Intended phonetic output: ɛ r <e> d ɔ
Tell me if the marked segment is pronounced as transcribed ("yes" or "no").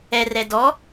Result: no